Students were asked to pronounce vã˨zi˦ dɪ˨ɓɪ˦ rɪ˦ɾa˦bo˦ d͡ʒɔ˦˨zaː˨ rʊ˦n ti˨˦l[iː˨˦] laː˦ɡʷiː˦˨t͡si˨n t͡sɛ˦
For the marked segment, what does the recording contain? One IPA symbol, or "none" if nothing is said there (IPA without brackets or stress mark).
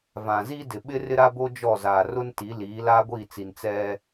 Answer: iː˨˦